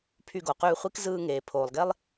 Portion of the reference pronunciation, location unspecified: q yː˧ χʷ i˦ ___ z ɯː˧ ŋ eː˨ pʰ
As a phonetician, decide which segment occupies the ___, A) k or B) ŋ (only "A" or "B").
A